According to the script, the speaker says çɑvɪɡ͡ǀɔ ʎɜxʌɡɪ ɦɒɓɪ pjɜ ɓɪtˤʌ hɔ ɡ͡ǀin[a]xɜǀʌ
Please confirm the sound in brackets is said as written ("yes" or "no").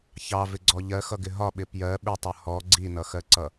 no